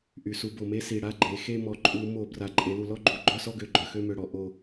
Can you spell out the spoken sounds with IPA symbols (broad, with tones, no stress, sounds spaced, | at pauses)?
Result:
ʔ y˨˩ s u˧˩˧ b o˨˩ m e˥˧ s i˨˩ ɽ a˥˧ ɡ͡ǃ e˩˧ x e˥˧ m ɔ˨˩ ǃʼ u˧˩˧ m o˧˩˧ b r a˨˩ ǃʼ e˩˧ l u˨˩ l ɔ˥˧ ɡ͡ǃ u˨˩ ɡ͡ǃ œ˥˧ s ɔ˥˧ ɡ ø˨˩ ɡ͡ǃ œ˨˩ x ø˥˧ m ø˨˩ ɽ ɔ˩˧ ʔ o˨˩